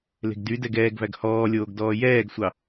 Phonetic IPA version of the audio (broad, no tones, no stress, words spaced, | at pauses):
le̤ɡdydɛɡ ɛːɡvæɡ hɔːlʲoːɡdɔː jɛːɡsʷɑ